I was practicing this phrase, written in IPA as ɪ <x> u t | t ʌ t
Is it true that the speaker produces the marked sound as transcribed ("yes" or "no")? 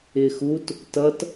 yes